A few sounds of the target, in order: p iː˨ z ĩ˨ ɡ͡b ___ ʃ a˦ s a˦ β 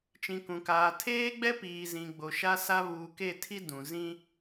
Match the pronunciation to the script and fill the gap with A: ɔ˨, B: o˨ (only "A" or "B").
B